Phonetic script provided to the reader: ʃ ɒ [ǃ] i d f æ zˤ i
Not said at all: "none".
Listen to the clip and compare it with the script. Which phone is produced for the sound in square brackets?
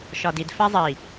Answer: d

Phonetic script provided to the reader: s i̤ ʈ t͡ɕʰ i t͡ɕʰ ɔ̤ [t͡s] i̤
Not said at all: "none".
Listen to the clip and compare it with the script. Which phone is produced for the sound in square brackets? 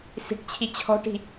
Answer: ʈ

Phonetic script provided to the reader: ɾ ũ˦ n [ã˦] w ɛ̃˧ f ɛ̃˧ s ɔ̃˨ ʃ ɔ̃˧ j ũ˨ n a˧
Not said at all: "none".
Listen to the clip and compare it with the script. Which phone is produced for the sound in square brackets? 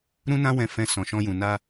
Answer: ã˦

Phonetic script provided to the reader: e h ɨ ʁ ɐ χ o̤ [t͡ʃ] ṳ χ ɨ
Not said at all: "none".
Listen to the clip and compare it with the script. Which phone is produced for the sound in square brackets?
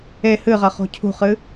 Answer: cʰ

